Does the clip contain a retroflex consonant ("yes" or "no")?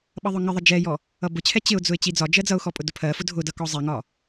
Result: no